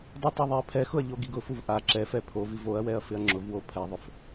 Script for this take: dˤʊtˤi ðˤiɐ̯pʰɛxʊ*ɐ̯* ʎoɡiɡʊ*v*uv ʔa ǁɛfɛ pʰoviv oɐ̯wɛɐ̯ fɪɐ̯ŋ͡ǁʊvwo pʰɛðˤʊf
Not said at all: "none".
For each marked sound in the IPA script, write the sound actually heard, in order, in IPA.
ɐ̯, f

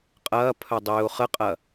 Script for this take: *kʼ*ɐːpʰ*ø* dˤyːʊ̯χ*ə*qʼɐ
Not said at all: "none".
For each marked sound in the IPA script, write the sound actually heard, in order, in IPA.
qʼ, œ, ə

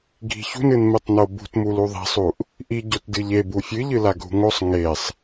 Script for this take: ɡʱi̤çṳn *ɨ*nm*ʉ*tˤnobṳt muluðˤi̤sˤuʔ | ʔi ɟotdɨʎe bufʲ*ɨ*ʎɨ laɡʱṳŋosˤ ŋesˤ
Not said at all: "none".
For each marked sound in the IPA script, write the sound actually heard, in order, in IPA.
ɨ, ɨ, ɨ

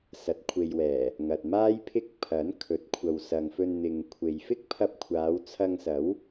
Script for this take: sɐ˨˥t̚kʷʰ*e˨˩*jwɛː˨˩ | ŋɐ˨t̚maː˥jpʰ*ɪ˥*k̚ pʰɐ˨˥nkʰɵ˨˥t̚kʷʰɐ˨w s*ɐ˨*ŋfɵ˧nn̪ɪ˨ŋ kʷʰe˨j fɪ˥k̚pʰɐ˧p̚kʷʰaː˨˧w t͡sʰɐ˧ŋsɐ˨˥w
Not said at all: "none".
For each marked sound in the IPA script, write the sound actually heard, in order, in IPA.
e˨, ɪ˥, ɐ˨

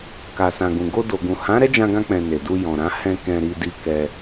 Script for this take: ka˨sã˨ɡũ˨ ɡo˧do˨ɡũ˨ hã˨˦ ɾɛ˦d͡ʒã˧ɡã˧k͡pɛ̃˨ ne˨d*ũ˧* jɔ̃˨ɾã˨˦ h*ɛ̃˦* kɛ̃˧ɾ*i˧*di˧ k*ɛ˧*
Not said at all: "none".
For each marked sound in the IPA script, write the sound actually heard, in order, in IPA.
u˧, ɛ̃˧, i˧, ɛ˧

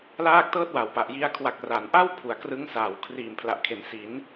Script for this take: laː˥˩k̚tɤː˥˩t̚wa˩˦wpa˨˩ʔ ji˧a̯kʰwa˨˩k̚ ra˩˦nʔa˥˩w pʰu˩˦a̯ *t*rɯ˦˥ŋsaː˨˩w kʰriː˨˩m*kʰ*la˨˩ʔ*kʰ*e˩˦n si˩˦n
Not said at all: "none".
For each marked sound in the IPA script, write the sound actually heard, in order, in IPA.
k, pʰ, kʰ

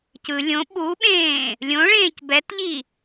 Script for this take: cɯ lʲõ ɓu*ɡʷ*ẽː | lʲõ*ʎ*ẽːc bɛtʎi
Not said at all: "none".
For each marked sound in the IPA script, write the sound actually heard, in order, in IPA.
ɓ, ɭ

